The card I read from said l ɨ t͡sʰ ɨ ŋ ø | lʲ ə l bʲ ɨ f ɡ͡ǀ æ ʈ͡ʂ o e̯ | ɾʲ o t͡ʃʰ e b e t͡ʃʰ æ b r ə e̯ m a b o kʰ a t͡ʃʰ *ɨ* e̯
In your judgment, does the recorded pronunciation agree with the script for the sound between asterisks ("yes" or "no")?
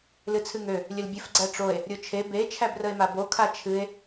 yes